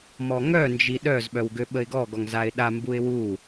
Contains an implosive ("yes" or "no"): yes